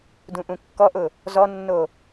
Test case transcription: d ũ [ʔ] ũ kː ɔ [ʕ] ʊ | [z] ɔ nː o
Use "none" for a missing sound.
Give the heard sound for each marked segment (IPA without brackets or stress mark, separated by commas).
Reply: ʔ, ʔ, z